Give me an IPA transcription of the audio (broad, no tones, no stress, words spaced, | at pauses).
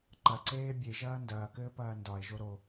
ǃɐǀeː bʲeʒɐː ndɐːkɘːpɐː ndɒe̯ʒo ɾo